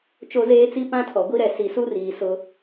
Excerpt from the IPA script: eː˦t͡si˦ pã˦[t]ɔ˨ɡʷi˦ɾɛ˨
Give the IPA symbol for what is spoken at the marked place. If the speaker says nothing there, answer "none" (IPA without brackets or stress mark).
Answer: tʰ